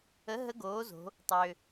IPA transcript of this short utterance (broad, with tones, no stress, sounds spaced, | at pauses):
ə˩˥ ɦ ə˧˥ ɡ oː˩˥ z o̤˩˧ | tˤ ø˩